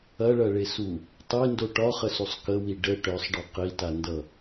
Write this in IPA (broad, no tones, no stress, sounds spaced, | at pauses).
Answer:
ɐ ɭ ɐ ɭ e s u | tˤ e n d o ʈ ɒ χ ə s u sˤ k ə w i ɖ ə ʈ œ sˤ ɖ ɒ q i t a n d ʌ